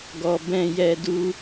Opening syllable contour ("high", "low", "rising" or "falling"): low